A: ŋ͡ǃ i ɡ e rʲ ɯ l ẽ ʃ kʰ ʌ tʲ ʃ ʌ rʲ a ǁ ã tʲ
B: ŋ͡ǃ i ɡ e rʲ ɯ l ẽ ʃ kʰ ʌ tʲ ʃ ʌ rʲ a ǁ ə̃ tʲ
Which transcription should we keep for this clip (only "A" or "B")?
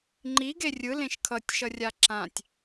A